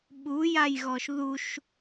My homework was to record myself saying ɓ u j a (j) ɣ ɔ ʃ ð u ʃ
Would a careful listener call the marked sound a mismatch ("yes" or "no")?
no